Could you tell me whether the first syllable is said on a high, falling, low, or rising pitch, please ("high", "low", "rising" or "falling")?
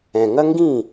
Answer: low